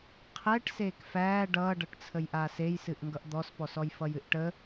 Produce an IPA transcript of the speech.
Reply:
qʰɛʈ seːkfæː ɖʌːɖʌʈt͡sʰəj ʔaːsejsɨʔ ŋɡʌʔd̪ɔspɔsɔj fʌjɨʔʈə

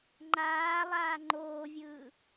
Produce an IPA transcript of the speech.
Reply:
ŋ͡ǃaːlˠaː ŋ͡ǃoːvʲɯː

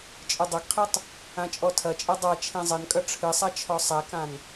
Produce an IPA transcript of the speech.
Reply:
t͡ʃʼɨdˤɐɡqʰetˤ | ãt͡ʃʼɔtʰɐt͡ʃʼe dˤa t͡ʃʰẽzˤɘnkʼɐ ʈ͡ʂʰɨsˤa t͡ʃʰɔsˤɛkãn

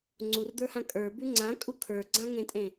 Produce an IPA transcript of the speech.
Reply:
ŋ͡ǀurd̪ə˞hã kʼə˞bʉ ŋ͡ǀãkʼu kʰə˞ɡ͡ǀãŋẽtʼẽ

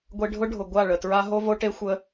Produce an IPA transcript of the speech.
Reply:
ɡʷe˧ɖʱʊ˦ɖʱʊ˨ ɡʷa˦˨ɭə˨tɹa˦ ɦo˦vo˦ʈe˦ xʷə˦

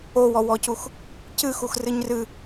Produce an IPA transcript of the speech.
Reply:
owɔwɔcux | cɨxuxrɨɲ rɨ

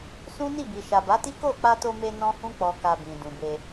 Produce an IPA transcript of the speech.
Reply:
sũ˦ni˦˨bi˨ ʃa˨ba˨˦ti˦ ko˦˨ k͡pa˧to˧me˧ nɔ̃˦hũ˦ k͡pɔ˧ka˧bĩ˨ dũ˨be˧

